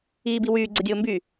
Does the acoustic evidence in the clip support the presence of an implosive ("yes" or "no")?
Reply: no